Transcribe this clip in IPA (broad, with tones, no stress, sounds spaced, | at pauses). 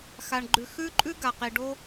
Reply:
x a˩ ɳ ɡ͡ǃ ʉ˩ x ʉ˧ ǃʼ ʉ˧ ɡ a˩ q i˩ ɖ o˥